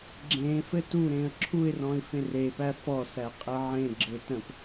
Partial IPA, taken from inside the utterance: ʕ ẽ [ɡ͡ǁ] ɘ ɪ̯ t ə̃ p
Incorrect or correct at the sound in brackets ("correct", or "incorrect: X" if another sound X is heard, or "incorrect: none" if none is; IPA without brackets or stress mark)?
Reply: correct